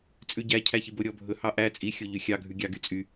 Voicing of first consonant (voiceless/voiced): voiceless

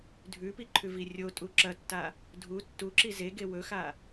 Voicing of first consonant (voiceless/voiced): voiced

